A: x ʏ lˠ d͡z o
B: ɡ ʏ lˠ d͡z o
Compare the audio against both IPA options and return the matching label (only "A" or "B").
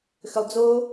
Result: A